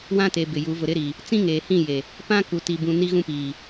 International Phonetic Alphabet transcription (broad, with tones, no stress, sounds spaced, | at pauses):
w ã˦ t e˨ b ɪ˨ j u˨˦ v ʊ˨ ɾ ɪ˦ ɾ iː˨ | t͡s ĩ˦ ŋ eː˨ h ĩ˦˨ j e˨ | p ã˦ k u˨ t i˨ b ũ˨ n i˦ ɣ ũ˦ p iː˨